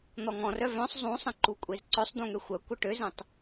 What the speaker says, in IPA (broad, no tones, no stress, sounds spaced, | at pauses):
n̪ ɔ ŋ ɔ̃ r œ v œ̃ sˤ zˤ ũ sˤ ə̃ ǃ u kʷʼ e z ǀ œ sˤ d̪ ũ ŋ ø xʷ œ kʷ ə ʈ ø z ə̃ tˤ